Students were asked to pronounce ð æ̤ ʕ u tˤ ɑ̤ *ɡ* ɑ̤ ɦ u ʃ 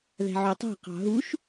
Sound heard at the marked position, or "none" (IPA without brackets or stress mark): q